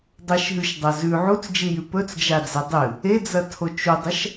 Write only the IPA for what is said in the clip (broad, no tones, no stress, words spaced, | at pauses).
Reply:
dˤɐʃɦʉʃdˤɐ zʉ ʕut͡sd͡ʒijʉ pɵt͡sd͡ʒad͡ze dˤɨ | ed͡zɐtʰo t͡ʃudˤɐʃ